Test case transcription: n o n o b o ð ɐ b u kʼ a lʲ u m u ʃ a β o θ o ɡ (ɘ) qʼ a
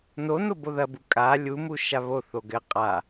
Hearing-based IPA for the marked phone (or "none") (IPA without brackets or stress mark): ɘ